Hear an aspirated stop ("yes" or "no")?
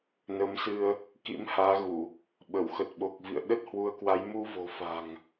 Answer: no